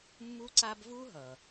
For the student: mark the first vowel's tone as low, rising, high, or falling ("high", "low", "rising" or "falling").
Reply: high